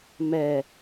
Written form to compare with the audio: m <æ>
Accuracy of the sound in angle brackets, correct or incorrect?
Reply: incorrect